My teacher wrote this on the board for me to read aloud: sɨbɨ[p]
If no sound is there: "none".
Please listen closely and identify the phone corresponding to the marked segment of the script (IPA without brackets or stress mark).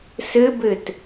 t